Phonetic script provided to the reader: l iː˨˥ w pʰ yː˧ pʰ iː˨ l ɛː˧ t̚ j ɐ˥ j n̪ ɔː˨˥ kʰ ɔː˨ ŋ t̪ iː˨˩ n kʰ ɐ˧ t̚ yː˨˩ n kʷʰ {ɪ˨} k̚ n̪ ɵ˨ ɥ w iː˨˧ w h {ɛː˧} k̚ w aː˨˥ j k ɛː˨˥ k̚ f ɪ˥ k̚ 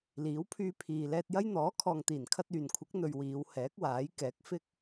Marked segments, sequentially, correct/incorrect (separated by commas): incorrect, incorrect